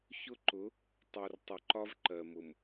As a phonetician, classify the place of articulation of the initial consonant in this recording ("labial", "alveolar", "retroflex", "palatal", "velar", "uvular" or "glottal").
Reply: palatal